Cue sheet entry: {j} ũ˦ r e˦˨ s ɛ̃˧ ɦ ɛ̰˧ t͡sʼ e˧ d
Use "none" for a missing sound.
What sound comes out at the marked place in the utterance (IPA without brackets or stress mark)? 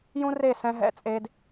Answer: j